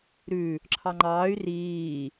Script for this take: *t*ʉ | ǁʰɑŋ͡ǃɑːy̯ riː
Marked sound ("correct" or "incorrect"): incorrect